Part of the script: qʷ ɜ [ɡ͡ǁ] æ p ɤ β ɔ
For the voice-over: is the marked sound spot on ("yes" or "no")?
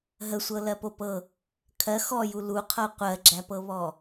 yes